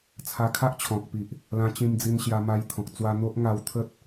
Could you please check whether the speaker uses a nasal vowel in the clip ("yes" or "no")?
yes